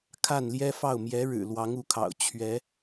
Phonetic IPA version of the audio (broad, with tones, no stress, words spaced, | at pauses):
kʰa˥˩nljɛ˥fɑ˥˩ʊ̯ mjɛ˧˥ɻɻ̩˨˩ lwɑ˧˥ŋu˧˥kʰɑ̰˨˩ʊ̯ t͡ɕʰɥɛ˧˥